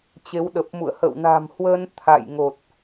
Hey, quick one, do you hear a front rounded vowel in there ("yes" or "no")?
no